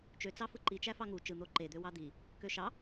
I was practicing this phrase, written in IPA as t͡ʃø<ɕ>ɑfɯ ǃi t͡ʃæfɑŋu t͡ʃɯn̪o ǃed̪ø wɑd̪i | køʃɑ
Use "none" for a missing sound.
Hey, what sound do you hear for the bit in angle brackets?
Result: t͡s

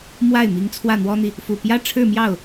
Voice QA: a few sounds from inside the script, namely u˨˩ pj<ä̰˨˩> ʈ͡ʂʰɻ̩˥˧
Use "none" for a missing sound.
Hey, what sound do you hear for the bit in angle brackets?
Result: ä˥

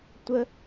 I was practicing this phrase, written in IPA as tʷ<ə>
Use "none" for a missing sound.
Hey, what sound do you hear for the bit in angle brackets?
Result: ə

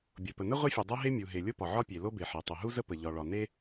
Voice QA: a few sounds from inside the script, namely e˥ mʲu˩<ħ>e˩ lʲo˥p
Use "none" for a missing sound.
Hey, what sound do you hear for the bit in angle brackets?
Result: ɦ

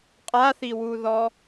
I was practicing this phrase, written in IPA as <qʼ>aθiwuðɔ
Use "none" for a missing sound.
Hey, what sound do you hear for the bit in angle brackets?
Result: qʼ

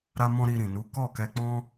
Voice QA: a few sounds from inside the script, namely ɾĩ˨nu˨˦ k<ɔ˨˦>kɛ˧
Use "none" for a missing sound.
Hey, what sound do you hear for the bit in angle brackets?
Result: ɔ˦˨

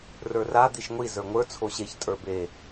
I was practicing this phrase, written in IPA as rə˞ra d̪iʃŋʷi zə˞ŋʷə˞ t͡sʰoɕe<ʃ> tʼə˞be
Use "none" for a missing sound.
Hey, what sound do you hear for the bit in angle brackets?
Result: ç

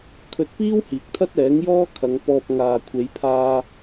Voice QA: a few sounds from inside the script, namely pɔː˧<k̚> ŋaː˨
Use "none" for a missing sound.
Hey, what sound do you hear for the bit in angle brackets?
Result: p̚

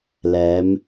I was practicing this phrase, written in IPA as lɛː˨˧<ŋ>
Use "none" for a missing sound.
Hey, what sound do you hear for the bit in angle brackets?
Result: m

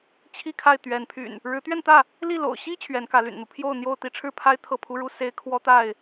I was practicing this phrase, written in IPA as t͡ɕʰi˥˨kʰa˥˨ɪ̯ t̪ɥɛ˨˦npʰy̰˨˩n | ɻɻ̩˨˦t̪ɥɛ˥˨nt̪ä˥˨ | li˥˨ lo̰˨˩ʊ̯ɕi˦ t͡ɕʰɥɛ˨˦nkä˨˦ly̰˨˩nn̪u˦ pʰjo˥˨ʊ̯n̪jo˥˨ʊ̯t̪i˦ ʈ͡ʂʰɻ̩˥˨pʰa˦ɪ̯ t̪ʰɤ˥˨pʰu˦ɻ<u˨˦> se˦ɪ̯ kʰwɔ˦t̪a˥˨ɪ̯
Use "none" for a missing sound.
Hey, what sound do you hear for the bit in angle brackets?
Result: u˦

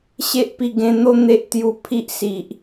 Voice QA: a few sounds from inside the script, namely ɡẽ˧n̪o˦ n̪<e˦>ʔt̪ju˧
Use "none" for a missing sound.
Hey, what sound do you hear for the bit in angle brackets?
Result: e˦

